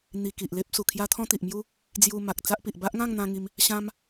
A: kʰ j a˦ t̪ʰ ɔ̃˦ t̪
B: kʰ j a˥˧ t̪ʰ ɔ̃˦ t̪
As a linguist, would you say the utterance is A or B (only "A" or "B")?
A